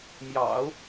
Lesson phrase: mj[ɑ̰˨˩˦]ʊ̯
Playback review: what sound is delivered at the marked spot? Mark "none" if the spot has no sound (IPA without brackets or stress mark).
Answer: ɑ̰˨˩˦